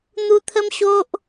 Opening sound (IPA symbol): n̪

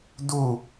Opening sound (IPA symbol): d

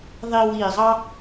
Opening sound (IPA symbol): ðˤ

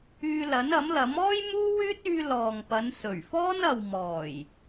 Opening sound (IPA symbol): yː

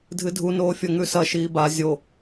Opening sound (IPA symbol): dʱ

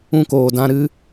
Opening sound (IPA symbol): ũ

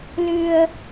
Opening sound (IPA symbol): l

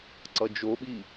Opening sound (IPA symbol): ǀ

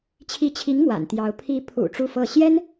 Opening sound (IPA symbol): t͡ɕʰ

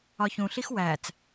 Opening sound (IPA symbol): ɒ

